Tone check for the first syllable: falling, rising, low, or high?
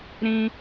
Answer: high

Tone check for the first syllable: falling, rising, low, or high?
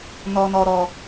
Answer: low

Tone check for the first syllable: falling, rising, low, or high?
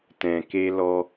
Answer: low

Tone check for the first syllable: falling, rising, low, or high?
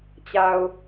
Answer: low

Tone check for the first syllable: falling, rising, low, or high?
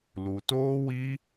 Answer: low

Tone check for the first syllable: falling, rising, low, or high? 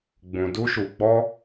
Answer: low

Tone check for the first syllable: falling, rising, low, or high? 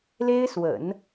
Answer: high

